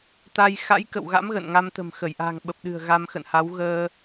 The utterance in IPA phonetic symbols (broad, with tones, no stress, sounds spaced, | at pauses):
t̪ a˧ j x a̰˧˥ j k ə̰˧˨ w ɣ a̰˧˥ m ɣ ə̰˧˨ n ŋ a˧ m t̪ ə̤˨˩ m x ə˧˩ j ʔ a̤˨˩ ŋ ɓ ə˨˩ p̚ ɗ ɨ̤˨˩ ə̯ ɣ a˧ m x ə̰˧˨ n h a˨˦ w ɣ əː˧